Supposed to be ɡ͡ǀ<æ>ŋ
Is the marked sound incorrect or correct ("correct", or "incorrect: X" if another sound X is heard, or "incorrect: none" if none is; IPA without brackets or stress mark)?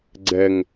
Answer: incorrect: ɛ